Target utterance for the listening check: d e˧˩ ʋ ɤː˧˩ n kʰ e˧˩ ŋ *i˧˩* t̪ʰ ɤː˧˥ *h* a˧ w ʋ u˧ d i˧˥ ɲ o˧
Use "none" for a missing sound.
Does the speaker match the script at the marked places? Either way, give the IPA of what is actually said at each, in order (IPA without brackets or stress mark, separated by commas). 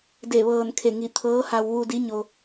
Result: i˧˩, h